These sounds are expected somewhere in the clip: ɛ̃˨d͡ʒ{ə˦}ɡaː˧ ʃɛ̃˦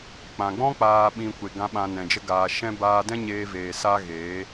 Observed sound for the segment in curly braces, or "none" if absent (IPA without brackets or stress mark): ə˦